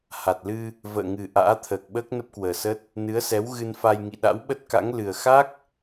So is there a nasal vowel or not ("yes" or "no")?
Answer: no